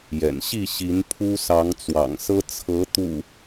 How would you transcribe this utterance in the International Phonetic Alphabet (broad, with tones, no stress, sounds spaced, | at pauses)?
j ɛ̰˨˩ n ɕ i˥˨ ɕ i˨˦ n pʰ u˦ s ɑ˨˦ ŋ t͡s w ɑ̰˨˩ ŋ s ɤ˦ t͡sʰ ɤ˨˦ t̪ ṵ˨˩